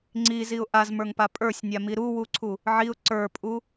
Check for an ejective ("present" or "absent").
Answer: present